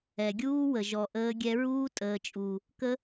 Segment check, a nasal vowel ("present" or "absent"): absent